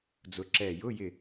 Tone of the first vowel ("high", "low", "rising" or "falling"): rising